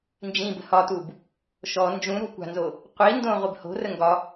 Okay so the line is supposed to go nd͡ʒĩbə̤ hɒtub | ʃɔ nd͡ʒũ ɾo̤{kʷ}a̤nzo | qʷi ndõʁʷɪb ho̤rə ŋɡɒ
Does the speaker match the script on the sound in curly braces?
yes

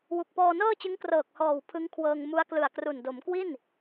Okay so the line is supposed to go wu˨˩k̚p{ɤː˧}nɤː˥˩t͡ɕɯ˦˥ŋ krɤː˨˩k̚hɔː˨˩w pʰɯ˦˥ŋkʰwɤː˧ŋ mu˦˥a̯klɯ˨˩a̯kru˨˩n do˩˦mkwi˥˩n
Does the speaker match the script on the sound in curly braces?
no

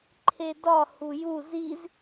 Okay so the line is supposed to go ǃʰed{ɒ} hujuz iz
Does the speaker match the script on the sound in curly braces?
yes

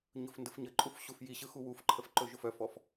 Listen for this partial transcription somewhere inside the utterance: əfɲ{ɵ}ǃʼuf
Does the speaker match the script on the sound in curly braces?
no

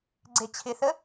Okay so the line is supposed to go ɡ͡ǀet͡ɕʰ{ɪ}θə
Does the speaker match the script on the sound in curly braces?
yes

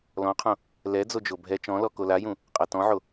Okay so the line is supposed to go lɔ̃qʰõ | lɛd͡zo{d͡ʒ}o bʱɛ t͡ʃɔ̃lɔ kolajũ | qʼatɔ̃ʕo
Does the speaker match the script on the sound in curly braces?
yes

